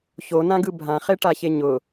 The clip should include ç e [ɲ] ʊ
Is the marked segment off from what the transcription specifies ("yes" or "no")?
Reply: no